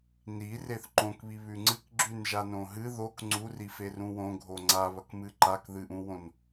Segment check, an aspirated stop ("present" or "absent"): absent